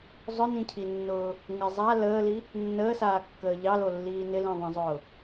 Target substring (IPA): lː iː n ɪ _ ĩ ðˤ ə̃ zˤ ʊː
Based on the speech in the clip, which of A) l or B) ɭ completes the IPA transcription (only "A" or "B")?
A